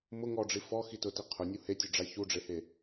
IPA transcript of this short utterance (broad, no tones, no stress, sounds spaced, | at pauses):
m ʊ ŋ ɔ ɖ͡ʐ i f ɔ x i t ʊ t i qʰ ʊ nʲ u h e tʲ ʊ ɖ͡ʐ a ç u ɖ͡ʐ e h e